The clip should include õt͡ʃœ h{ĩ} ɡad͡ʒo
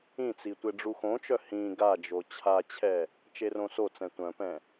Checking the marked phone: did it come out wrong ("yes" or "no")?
no